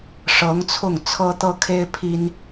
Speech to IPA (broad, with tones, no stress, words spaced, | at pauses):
ʂɤ˧˥ŋt͡sʰʊ˥˩ŋ t͡sʰɤ˥t̪ɤ˥kʰe˥ɪ̯ pʰi˥n